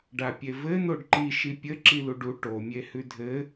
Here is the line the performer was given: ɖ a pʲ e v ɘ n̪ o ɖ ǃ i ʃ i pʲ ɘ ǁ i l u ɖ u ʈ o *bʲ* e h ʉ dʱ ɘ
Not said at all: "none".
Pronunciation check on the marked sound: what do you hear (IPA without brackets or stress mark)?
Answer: mʲ